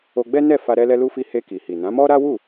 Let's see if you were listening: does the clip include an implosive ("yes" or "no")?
no